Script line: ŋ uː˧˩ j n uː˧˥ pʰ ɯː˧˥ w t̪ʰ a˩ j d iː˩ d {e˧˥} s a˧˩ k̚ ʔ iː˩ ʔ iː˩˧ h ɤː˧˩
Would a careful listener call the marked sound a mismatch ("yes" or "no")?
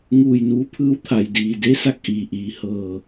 no